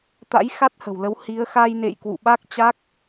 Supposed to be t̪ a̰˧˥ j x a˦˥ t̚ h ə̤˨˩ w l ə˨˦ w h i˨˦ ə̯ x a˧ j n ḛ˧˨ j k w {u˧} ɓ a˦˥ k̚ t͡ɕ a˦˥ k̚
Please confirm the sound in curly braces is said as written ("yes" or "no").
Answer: no